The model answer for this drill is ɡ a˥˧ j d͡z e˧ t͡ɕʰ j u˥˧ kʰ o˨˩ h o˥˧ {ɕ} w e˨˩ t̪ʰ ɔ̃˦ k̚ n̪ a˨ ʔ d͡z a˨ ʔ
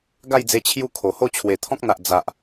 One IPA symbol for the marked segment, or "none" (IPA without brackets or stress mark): t͡ɕʰ